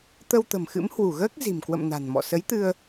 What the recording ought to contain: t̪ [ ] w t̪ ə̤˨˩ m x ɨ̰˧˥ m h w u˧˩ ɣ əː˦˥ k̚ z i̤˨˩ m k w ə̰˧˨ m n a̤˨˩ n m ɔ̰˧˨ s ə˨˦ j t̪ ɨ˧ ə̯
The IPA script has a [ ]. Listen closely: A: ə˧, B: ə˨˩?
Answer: A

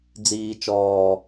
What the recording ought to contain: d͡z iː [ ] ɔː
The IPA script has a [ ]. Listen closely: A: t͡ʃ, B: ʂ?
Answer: A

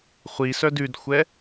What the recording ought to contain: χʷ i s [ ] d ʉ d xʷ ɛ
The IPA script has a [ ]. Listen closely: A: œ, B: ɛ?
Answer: A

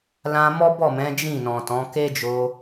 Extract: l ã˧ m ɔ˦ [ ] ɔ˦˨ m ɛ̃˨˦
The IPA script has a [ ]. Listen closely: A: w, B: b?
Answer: B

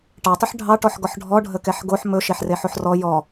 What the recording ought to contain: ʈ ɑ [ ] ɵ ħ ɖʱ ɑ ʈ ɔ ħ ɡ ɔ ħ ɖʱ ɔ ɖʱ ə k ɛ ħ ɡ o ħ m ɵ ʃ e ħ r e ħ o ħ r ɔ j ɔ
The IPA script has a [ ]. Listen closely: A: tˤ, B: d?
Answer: A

